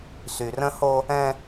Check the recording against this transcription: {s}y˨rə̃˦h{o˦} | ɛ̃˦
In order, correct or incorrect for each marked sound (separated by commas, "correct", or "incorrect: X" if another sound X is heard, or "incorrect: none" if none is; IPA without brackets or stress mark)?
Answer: correct, correct